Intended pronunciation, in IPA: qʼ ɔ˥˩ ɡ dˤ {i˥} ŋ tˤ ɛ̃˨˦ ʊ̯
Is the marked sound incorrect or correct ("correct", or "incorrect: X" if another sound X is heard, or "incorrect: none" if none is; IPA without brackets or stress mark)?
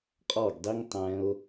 correct